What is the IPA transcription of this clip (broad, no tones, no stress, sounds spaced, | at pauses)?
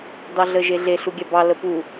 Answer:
d ɑ ɮ ə ʒ e ɮ e ɬ u ɡʲ a b ɑ l ə p u